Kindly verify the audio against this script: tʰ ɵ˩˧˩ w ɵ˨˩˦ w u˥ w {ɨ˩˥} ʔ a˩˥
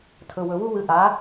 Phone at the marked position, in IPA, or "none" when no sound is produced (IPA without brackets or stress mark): ɨ˩˥